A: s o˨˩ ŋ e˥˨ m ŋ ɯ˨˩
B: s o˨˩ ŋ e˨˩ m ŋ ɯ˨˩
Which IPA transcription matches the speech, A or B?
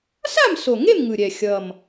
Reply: A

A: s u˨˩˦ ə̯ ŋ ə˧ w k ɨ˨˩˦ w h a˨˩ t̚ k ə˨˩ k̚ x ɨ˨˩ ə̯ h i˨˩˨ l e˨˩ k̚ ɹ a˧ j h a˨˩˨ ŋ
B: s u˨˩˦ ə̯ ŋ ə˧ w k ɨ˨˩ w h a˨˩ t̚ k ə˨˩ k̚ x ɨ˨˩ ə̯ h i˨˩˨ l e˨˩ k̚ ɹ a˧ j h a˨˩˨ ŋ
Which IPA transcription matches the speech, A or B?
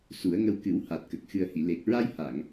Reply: A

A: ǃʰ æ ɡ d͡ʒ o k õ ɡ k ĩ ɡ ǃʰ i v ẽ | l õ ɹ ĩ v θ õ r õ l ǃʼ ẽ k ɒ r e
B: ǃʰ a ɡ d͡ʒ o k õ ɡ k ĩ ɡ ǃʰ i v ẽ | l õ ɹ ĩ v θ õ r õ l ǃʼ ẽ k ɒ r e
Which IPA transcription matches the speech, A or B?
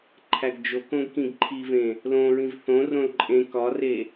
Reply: A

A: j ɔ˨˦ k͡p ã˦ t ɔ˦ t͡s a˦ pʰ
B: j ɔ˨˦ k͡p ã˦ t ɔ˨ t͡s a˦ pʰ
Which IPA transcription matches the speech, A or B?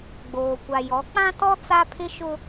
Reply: A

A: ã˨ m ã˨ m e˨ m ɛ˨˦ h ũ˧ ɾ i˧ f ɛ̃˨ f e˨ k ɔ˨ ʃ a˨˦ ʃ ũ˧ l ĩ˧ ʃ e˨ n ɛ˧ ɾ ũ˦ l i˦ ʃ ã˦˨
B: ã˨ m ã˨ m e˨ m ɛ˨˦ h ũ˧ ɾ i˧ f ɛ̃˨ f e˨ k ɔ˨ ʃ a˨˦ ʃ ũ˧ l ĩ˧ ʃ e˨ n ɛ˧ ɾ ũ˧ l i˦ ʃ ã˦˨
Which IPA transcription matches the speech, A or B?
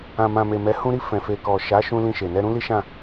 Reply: A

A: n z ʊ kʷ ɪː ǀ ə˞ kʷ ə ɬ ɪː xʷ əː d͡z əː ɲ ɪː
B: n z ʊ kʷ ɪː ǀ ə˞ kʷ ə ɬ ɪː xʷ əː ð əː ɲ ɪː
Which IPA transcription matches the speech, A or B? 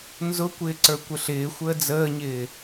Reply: A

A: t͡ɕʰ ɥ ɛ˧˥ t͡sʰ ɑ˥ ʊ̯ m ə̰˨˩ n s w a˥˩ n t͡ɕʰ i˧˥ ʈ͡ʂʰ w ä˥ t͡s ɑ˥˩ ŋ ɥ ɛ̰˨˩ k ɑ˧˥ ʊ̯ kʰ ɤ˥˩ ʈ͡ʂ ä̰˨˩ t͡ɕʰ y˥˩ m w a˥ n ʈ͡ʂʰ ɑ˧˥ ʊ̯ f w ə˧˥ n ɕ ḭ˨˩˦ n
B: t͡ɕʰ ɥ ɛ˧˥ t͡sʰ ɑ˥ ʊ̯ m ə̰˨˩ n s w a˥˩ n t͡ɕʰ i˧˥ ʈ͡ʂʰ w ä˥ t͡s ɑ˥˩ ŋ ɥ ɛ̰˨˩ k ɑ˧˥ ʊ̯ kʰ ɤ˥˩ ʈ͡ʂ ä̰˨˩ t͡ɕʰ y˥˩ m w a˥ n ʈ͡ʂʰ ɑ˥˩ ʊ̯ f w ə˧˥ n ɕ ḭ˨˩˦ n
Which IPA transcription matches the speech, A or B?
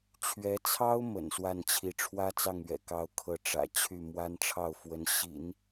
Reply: B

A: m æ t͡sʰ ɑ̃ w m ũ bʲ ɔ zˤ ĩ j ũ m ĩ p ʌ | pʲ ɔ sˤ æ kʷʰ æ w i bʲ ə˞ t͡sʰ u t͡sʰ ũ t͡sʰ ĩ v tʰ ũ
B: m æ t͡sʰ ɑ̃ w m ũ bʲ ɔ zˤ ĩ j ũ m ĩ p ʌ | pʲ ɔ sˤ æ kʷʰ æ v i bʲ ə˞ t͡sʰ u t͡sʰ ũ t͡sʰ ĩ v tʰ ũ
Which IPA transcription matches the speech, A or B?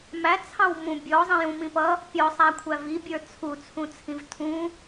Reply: B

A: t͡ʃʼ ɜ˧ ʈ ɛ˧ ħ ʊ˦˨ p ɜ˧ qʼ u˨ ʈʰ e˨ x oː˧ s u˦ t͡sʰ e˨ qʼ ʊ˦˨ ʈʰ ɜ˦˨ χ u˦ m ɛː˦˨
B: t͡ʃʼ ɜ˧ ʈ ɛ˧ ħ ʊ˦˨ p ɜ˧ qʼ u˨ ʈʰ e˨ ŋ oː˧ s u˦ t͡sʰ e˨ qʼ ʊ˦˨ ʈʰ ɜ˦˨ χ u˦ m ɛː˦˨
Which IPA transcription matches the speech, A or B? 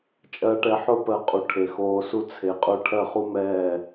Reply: A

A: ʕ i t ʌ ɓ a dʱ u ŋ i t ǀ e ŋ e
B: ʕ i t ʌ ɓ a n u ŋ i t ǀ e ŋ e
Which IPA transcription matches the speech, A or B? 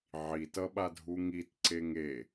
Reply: A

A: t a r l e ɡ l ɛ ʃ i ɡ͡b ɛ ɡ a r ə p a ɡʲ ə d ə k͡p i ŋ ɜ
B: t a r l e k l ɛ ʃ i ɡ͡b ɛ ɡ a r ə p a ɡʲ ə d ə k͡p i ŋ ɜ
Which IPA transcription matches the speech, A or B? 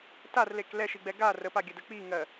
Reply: B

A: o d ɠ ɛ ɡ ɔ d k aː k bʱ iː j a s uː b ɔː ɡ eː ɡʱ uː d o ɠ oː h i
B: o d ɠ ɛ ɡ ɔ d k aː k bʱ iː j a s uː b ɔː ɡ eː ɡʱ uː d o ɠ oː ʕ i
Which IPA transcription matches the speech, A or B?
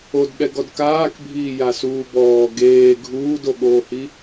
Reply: A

